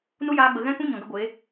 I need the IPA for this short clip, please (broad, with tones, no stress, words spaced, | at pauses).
nu˦jaː˧ɡ͡bə˨ ɣɛ̃˧kũ˧ ɲɔ̃˨ɡə˧ɡʷeː˨˦